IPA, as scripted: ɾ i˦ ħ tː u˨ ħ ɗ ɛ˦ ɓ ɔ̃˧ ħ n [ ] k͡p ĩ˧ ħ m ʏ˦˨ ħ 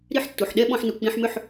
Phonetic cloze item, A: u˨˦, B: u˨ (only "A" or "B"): B